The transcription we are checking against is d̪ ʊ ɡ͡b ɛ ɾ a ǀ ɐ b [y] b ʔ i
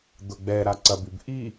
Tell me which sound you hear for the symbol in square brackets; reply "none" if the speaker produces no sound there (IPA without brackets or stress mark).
y